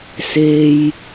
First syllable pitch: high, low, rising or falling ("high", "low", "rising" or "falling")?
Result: high